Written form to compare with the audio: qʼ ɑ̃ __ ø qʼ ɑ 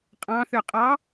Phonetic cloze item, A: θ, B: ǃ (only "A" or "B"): A